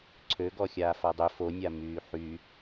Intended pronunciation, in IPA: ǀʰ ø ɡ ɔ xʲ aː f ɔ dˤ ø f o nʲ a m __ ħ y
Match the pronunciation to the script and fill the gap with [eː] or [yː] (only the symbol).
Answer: yː